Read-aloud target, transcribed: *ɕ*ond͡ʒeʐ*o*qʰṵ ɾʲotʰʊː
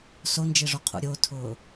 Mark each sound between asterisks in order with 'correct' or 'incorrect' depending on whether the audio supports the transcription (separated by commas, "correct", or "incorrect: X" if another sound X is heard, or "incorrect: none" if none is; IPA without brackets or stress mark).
incorrect: s, correct